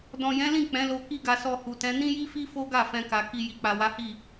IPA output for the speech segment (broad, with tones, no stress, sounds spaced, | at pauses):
d ɔ̃˨ j ɛ̃˨˦ l ĩ˦˨ k͡p ɛ̃˨˦ l o˧ k i˦ ɡ a˧ s ɔ˧ h u˨ t ɛ̃˨˦ n ĩ˦ j i˦ f i˦ f o˦ ɡ a˦˨ f ɛ̃˧ k a˨ k i˧ j i˨ k͡p a˨ w a˨˦ h i˦˨